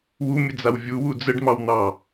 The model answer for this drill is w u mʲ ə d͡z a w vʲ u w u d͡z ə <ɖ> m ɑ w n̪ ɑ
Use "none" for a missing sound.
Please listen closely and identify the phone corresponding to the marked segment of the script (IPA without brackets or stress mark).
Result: ɖ